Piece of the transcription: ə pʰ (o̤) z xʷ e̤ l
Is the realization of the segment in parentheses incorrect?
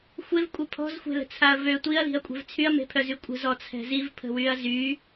yes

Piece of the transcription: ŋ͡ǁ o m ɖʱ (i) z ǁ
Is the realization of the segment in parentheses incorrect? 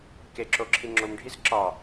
no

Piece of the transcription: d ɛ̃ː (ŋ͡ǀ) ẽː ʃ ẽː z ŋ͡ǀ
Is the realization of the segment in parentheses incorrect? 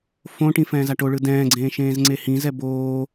yes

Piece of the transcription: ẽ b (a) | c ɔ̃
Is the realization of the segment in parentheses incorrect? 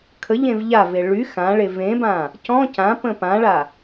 yes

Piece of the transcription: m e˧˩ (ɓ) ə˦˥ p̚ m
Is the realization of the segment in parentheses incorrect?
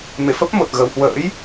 yes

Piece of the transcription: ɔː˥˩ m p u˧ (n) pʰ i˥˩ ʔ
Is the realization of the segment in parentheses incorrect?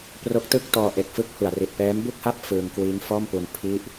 no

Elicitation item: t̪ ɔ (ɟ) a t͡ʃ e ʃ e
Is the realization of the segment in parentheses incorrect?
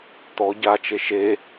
no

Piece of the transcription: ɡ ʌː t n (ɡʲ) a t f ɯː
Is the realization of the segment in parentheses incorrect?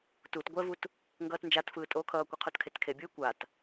yes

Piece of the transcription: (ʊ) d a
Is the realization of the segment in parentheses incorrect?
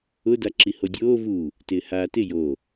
no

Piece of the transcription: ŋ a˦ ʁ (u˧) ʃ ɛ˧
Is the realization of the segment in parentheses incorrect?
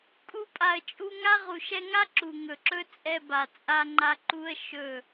yes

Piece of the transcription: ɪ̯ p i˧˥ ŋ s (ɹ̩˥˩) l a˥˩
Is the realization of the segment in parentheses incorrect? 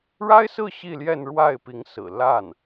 yes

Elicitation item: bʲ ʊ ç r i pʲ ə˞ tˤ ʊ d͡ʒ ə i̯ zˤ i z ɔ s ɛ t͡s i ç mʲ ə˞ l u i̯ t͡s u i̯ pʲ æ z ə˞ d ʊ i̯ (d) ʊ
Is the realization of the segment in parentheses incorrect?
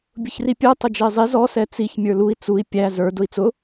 yes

